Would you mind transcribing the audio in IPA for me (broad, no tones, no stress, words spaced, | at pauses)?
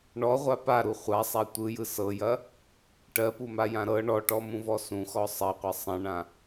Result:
ɳɔʁʷa paɾu χʷasˤa tʷɯjɯ sɤjɐ | ʈɜpumajã ɾɤ ɳɔʈɔmũvɔ sũxɔ sˤɐqʷɐ sˤɐ̃ɳã